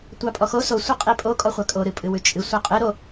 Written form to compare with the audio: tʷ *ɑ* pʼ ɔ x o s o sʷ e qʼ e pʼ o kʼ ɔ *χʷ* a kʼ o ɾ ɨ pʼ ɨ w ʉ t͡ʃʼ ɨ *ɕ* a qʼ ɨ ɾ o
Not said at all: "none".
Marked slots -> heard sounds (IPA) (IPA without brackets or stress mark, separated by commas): ɑ, χʷ, sʷ